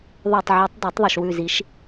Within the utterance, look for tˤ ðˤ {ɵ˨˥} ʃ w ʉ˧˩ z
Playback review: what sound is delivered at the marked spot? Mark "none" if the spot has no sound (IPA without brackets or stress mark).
ɵ˧˩